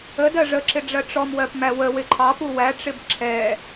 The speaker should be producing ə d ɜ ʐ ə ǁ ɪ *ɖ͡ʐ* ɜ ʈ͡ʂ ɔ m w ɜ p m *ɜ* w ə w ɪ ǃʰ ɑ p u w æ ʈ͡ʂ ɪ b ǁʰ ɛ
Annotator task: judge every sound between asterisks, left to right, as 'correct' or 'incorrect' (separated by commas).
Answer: correct, incorrect